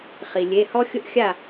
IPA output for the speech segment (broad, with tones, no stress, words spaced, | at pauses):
χi˩lʲe˩˧˩hɔ˦ xʲʊ˦ʔxʲa˥˩